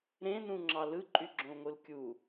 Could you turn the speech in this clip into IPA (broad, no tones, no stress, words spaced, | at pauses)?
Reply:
ɾẽnũŋ͡ǁɑ lɯǃʼyɡ͡ǁõlŋʷɯl kʲu